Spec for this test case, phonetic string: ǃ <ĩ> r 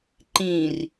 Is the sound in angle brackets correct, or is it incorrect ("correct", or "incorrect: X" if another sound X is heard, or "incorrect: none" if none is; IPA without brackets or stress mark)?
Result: correct